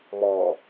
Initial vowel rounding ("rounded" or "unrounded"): rounded